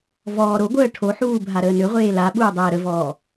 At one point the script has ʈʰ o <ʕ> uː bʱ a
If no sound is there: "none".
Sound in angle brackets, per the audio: ħ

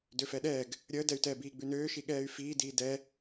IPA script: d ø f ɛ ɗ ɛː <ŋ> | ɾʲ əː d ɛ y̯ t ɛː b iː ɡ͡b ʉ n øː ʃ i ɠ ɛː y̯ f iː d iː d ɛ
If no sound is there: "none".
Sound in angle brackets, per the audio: ɡ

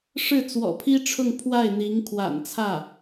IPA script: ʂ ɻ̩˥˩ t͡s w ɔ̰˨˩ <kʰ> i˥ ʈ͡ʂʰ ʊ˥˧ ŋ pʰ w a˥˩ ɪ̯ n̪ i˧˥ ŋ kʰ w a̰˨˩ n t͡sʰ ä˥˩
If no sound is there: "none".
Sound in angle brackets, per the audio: pʰ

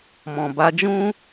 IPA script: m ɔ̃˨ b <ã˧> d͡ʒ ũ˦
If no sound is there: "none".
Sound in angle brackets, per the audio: a˧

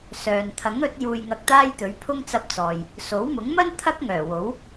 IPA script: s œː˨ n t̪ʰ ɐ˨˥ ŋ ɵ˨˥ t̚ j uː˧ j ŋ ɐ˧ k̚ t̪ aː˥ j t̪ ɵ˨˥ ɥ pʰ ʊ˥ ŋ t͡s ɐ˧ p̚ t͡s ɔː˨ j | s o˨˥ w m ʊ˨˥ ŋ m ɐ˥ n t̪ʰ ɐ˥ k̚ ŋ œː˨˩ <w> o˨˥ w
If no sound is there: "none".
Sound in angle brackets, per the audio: w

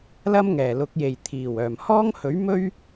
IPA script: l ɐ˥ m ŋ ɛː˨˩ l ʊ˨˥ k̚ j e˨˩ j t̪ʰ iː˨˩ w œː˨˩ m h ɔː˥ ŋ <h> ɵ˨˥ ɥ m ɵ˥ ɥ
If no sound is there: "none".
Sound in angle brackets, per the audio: h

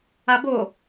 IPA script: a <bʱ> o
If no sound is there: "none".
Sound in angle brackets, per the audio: b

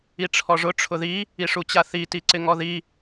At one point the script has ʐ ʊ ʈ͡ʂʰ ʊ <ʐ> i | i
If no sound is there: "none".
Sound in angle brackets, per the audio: ð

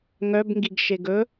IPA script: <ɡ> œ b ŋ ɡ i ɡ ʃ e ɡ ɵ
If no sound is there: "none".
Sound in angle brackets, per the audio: ŋ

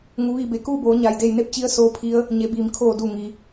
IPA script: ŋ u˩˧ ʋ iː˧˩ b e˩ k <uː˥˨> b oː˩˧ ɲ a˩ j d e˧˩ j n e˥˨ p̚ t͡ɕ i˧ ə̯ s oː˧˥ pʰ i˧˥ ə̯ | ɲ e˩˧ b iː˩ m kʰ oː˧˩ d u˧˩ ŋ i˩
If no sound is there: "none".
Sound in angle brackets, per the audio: uː˥˨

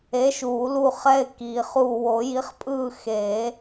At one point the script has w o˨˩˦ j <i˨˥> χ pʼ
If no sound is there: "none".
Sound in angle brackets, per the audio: i˨˥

